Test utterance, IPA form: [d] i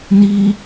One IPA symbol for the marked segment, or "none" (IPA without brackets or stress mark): n